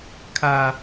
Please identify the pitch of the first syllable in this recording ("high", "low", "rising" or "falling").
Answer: low